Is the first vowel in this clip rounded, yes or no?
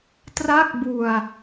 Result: no